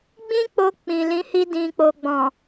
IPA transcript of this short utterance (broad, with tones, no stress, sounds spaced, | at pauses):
ɡ͡b ĩ˦ k͡p o˧ k͡p ĩ˨ l ĩ˨˦ h i˧ d ĩ˨ k͡p o˨ ɡ͡b ɔ̃˨